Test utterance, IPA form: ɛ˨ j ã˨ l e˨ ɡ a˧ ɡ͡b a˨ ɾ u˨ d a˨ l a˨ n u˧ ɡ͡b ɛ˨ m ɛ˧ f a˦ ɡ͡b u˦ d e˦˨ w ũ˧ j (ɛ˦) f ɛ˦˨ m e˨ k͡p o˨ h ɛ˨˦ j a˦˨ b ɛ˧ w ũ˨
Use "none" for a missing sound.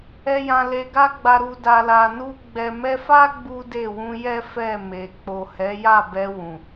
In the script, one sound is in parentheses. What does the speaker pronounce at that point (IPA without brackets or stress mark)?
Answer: ɛ˦